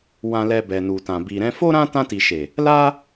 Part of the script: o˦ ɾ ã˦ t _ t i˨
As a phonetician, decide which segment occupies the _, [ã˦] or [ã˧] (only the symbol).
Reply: ã˧